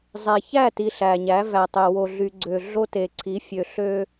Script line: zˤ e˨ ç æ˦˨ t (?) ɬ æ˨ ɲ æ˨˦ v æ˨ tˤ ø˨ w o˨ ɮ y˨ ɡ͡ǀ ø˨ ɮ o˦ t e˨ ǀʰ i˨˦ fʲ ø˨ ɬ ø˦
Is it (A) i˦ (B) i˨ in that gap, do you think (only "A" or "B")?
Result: B